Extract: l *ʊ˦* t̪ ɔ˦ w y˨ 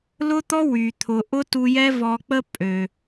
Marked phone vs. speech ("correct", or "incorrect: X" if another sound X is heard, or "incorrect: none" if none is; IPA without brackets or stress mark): correct